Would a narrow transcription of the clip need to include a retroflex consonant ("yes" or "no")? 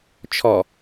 no